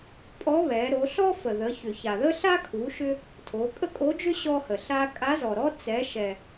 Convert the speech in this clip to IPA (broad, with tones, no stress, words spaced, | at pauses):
pʼɔ˧˥βɛ˩˧ɾo˩˧ ɬɔ˥fə˩ ðə˩˧ çʏ˩ça˩ðə˥ɬa˥ kʰu˩˧ʃʏ˧ | tʰo˩˧kʼə˥kʼo˧˥d͡ʒʏ˥ ɕɔ˧hə˩ ɬa˧kʼa˧˥zɔ˩ɾɔ˥ t͡sɛ˩˧ʃɛ˩